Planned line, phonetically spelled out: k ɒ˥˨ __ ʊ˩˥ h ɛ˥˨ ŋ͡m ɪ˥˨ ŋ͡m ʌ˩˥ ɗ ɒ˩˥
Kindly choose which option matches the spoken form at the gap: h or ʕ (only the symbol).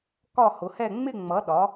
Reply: h